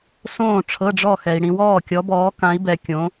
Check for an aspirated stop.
present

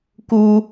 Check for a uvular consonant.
absent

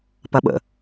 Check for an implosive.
present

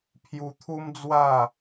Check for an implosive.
absent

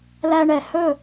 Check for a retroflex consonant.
present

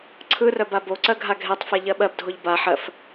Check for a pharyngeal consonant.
present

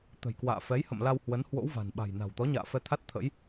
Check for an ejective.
absent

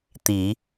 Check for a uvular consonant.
absent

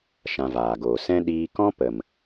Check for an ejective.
absent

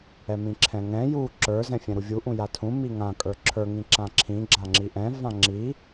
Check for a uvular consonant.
absent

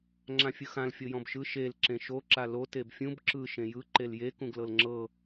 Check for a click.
present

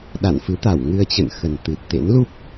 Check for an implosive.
present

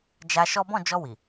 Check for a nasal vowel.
present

